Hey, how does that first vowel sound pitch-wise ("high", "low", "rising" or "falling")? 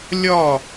falling